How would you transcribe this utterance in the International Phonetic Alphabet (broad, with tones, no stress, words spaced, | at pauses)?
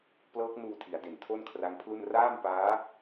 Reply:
plɤː˦˥k̚nuː˧tʰi˩˦a̯ de˨˩ntʰo˥˩nkʰra˦˥ŋpʰlu˥˩n raː˥˩mpaː˦˥